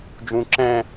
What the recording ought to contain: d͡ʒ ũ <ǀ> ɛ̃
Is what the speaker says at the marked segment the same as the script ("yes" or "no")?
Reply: no